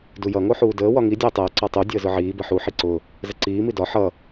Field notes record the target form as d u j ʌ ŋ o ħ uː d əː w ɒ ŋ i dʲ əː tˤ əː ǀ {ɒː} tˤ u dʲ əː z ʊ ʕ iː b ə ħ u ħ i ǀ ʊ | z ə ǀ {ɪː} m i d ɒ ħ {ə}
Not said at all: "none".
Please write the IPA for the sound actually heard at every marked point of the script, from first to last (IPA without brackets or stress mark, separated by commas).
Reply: ɒ, iː, ʌ